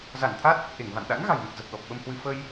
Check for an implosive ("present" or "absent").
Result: present